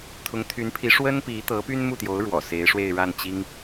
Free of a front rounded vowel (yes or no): no